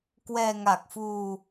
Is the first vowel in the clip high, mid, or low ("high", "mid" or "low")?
mid